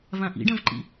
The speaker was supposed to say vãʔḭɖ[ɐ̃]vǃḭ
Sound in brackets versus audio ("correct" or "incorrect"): correct